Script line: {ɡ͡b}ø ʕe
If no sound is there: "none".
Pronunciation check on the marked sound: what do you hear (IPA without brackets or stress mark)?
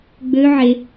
ɡ͡b